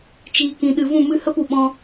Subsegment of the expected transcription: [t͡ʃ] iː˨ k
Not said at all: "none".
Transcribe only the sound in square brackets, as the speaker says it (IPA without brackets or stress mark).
t͡ʃ